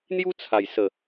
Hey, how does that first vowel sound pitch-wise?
high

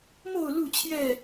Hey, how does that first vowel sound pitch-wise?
low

